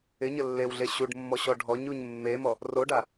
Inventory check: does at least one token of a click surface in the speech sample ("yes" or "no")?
no